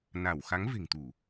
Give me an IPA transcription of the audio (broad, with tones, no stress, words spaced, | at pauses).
na˧˩w xa˨˦ŋve̤˨˩ŋt̪u˧˩˨